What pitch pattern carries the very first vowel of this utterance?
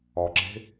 low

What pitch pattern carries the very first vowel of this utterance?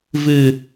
low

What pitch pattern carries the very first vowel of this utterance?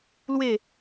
falling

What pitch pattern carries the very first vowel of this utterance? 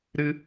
high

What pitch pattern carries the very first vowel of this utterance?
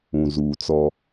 low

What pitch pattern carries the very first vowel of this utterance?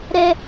high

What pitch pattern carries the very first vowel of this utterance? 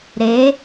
rising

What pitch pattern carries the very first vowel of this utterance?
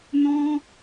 high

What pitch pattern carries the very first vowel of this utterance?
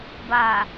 low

